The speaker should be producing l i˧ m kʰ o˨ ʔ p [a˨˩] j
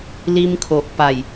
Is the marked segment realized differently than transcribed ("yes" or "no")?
no